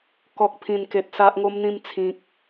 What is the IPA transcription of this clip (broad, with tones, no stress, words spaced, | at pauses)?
kɔ˨k̚pʰĩ˨˩nke˨t̚ sa˦ʔŋo˦mn̪ĩ˥˧m t͡sʰĩ˨k̚